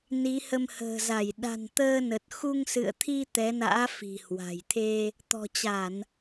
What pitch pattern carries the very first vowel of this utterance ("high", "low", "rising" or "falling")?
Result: rising